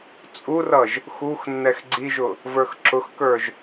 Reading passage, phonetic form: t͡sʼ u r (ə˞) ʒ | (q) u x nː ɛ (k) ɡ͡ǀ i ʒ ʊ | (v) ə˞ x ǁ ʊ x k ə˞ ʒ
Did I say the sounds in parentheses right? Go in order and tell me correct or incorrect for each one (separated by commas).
incorrect, incorrect, incorrect, correct